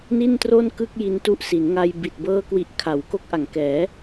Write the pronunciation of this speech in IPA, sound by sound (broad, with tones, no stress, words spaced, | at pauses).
ni˥˩ntro˥˩nkɯ˥˩k̚ ji˧ntu˦˥ʔsi˩˦nŋa˧j bi˨˩t̚bɤː˦˥kwi˨˩ʔ kʰa˩˦w ko˦˥k̚ʔa˨˩ŋkɛː˩˦